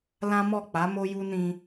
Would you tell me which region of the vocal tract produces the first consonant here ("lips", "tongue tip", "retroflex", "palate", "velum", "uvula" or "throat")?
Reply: tongue tip